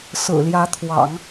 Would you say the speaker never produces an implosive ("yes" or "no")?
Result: yes